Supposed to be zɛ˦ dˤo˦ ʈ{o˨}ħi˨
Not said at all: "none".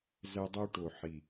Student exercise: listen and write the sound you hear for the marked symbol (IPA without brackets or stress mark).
o˨